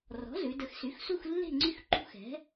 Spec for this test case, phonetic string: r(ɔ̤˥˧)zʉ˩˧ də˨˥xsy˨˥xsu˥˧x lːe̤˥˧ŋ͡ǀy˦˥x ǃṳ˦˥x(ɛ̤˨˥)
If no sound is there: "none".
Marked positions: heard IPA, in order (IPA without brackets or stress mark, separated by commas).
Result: ɔ̤˨˥, ɛ̤˨˥